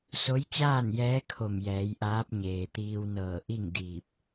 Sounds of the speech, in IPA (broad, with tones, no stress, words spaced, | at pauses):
so˧˥jt͡ɕaː˥˨njɛː˧˥ kʰo˧˩mjɛː˩˧jʔaː˧˥p̚ ɲeː˩t̪iː˧wnɤː˧˩ ʔi˥˨ŋdiː˧˩p̚